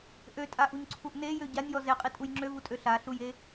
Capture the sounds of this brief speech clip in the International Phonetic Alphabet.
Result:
ʔ ø tʼ a ʔ u ɲ ǀʰ u ʔ n e j ø ɟ a nʲ j ɔ z e qʼ i tʼ u j ŋ͡ǁ ø v u tʼ ø ɬ a ɬ u j e

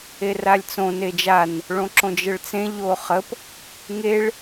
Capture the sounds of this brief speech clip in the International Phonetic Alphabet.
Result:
e r a lʲ t͡s õ n e d͡ʒ a n | ɭ õ ǁ õ d͡ʒ ə ɭ t͡s ẽ ʎ o χ ə p | ŋ e ɭ

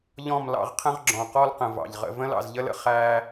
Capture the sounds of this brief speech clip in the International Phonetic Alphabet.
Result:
ʎ ɔ̃˦˨ m l ɑ̰˧ ʁ qʰ ə̃˦ ʁ ɡ͡ǁ ɔ̃˨ q ɔ˦ l q ə̃˨ v ɑ̰˨ ʎ ʁ ə̰˦ v ə̃˦ l ɑ̰˨ z ʎ ə˦ l ə̰˧ χ æː˧

